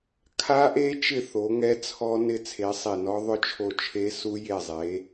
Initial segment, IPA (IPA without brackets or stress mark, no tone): kʰ